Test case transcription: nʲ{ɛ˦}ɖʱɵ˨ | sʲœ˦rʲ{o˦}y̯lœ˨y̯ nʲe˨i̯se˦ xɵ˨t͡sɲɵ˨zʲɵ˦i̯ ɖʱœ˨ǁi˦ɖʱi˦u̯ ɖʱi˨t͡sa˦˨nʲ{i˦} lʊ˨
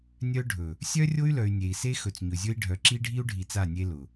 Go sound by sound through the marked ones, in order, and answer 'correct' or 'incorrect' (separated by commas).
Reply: incorrect, correct, incorrect